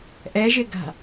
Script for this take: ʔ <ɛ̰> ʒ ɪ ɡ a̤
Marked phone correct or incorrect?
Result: incorrect